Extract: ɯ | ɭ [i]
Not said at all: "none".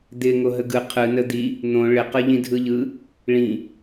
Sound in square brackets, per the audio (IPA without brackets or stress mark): ĩ